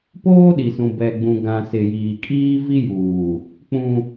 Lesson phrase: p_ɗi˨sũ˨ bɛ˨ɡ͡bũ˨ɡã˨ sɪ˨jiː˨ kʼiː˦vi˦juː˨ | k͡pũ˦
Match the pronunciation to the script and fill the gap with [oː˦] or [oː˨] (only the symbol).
oː˦